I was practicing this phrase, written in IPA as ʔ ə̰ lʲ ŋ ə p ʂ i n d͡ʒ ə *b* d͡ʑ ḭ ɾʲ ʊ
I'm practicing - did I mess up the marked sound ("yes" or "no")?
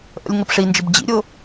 no